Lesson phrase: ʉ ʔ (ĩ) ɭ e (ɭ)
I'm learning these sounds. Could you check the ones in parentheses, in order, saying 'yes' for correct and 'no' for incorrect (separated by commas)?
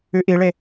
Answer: no, no